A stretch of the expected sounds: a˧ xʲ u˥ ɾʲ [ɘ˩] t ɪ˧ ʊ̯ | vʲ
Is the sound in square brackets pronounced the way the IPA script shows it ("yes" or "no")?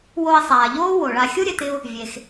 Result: yes